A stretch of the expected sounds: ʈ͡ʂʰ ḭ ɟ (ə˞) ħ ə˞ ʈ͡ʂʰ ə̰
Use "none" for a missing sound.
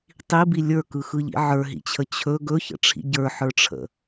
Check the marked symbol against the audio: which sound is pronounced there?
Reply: ə˞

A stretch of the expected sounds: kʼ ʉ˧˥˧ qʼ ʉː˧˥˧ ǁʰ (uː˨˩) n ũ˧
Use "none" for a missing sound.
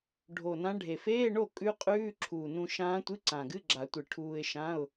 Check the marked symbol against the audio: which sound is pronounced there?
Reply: uː˨˩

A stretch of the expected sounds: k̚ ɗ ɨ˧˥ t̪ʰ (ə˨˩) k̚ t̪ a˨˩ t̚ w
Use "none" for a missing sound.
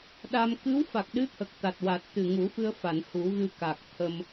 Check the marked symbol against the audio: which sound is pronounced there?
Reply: ə˨˩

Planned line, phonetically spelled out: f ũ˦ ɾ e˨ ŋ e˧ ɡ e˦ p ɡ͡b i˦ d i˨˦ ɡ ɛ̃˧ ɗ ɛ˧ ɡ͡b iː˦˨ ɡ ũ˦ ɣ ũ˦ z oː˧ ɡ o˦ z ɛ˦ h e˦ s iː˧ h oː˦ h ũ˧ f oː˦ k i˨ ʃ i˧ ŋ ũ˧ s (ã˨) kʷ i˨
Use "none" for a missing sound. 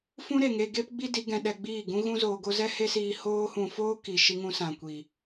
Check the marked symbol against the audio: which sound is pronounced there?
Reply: ã˨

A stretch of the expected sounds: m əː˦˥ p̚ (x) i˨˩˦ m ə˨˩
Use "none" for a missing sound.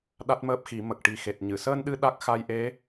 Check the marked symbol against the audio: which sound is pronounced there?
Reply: x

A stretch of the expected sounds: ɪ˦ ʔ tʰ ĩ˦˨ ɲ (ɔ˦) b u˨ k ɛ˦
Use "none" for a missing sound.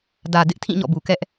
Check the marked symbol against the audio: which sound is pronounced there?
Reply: ɔ̰˦˨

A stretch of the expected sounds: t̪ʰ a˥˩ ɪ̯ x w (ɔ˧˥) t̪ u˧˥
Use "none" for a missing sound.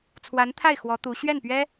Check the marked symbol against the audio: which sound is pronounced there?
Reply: ɔ˧˥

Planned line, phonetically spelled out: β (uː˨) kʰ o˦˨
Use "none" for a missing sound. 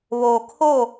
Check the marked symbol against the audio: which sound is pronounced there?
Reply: oː˨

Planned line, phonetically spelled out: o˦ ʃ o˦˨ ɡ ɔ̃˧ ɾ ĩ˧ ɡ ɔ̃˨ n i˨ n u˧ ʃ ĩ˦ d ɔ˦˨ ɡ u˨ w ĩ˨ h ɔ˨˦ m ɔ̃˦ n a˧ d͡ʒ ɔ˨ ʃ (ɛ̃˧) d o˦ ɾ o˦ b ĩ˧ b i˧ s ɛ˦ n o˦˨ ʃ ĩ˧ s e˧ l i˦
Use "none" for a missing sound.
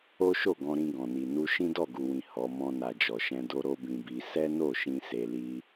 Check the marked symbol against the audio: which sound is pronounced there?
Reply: ɛ̃˧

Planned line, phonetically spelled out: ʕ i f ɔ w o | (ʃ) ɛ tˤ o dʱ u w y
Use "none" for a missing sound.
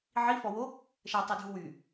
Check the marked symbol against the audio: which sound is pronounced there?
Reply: ʃ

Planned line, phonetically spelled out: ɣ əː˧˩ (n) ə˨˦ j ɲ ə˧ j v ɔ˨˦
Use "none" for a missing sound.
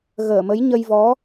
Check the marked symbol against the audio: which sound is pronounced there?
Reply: m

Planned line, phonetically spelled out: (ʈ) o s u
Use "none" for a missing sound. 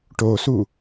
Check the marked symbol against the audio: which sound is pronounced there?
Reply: ʈ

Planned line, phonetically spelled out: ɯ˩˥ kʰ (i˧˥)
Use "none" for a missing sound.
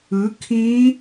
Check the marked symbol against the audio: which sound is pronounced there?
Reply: ĩ˧˥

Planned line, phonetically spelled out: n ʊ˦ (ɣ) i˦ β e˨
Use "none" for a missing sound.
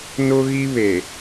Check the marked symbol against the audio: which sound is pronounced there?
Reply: ɣ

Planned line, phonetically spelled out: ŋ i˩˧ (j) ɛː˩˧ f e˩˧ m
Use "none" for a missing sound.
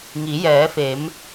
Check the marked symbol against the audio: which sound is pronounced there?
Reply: j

